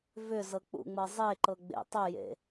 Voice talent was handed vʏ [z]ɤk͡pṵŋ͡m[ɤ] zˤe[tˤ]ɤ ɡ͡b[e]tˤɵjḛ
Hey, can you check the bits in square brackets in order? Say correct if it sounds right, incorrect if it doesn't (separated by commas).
correct, correct, incorrect, incorrect